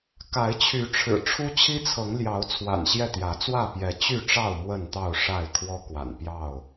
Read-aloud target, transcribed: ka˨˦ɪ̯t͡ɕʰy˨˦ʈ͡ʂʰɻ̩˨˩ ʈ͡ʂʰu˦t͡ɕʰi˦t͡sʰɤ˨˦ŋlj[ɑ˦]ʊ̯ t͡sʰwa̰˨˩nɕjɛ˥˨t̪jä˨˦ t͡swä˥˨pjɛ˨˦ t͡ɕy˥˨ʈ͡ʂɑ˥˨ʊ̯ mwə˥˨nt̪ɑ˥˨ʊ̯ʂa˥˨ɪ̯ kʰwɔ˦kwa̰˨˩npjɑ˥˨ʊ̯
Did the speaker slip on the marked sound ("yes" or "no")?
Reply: yes